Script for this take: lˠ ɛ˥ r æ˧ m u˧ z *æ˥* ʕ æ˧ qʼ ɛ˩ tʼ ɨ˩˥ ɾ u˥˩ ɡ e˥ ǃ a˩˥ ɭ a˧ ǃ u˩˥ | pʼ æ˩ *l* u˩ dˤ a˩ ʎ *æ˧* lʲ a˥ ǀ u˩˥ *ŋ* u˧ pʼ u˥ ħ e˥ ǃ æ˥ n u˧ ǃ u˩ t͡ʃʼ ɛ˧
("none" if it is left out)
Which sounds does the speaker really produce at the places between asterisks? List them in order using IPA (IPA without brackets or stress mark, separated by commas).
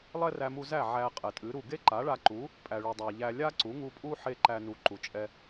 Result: æ˥˩, ɭ, æ˧, ŋ